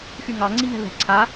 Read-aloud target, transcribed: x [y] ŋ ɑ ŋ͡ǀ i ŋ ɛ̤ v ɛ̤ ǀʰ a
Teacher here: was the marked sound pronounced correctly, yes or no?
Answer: yes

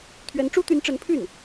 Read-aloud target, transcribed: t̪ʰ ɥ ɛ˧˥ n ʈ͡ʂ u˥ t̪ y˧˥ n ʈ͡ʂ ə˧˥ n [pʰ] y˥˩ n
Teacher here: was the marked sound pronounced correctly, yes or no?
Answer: yes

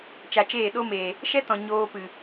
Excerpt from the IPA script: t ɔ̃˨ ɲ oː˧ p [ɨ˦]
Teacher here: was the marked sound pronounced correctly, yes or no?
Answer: no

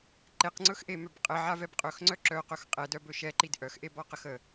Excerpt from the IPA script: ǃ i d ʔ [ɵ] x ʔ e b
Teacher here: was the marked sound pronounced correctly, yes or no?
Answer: no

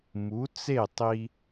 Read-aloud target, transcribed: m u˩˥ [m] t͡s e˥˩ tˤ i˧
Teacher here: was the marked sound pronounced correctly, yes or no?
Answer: no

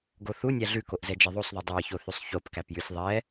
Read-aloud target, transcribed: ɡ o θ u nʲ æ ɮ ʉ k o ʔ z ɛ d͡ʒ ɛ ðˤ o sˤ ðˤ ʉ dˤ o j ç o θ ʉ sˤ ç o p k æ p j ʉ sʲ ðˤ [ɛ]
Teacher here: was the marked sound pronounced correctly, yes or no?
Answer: yes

